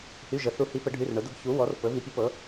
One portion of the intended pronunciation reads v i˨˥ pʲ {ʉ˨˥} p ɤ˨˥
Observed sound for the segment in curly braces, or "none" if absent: u˨˥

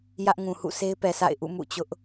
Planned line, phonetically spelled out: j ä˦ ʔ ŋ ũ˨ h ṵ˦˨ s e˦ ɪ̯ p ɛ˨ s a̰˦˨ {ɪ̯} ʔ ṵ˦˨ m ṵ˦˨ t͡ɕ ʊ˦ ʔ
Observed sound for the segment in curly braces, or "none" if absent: ɪ̯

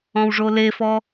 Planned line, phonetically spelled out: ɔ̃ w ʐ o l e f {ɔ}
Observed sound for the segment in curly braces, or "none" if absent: ɔ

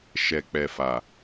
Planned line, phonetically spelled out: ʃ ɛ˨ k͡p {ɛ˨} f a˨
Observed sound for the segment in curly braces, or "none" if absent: ɛ˨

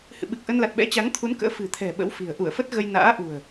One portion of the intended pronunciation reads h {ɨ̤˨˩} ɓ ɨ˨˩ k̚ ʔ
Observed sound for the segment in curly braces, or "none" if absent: ɨ̰˧˨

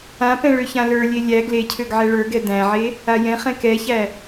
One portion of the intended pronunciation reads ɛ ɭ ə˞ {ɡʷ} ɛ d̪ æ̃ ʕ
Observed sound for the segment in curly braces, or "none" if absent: ɡ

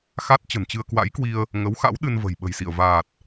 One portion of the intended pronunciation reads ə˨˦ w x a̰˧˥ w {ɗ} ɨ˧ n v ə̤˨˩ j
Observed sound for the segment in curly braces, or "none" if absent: ɗ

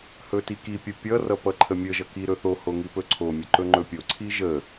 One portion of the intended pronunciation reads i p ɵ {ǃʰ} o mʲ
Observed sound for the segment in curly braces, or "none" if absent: ǀʰ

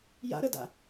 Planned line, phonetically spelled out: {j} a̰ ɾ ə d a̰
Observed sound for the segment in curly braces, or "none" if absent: j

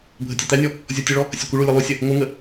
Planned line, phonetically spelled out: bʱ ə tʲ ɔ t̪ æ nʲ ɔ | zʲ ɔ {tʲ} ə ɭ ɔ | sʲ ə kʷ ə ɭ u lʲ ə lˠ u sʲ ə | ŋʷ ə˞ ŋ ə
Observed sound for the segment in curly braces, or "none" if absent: tʲ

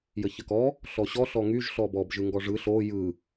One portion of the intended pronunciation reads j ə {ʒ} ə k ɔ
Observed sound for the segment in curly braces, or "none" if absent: ç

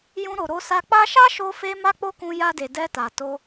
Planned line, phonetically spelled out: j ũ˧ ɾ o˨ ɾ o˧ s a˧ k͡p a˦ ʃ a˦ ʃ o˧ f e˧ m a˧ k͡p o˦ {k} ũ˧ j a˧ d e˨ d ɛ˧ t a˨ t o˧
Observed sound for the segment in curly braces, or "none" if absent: k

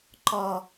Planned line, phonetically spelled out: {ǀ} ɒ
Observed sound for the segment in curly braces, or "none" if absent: ǃ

